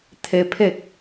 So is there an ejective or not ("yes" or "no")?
no